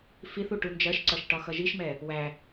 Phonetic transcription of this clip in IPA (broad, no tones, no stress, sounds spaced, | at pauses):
f i θ u ʈ u n d͡ʒ ɜ ʃ ǀ ʌ ʃ ʈ ɒ x ʌ ʒ i ʃ m ɛ | w æ